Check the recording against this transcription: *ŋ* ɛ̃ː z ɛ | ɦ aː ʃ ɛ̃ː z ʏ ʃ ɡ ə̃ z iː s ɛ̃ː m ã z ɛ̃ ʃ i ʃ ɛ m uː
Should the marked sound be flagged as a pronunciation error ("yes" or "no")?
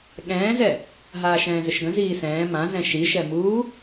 yes